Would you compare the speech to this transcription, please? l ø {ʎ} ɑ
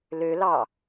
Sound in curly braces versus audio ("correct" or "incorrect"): incorrect